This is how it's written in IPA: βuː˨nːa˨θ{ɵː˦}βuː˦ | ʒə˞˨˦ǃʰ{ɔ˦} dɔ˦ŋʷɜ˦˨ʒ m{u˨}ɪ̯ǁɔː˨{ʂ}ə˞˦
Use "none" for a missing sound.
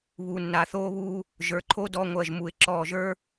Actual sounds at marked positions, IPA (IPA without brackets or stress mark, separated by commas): oː˦, o˦, u˨, ʒ